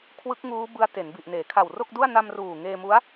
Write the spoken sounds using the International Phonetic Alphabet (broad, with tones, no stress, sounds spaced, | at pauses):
kʰ w ɯ˦˥ k̚ ŋ uː˦˥ b ɯ˦˥ a̯ t e˩˦ n b i˨˩ ʔ n eː˩˦ kʰ a˨˩ w r o˥˩ k̚ d u˥˩ a̯ n a˧ m r uː˨˩ ŋ eː˧ m u˦˥ a̯